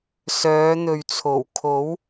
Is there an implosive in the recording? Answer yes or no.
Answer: no